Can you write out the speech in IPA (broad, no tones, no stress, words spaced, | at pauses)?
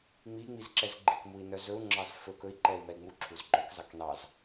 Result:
ŋ͡miŋ͡mizǁɛzɡ͡ǃik mui̯nœzɵu̯ŋ͡ǁɑz fɵ kɵi̯ ǃɛi̯mɛi̯ŋ͡mu ǁʰuzɡ͡ǃœk zɑknɑz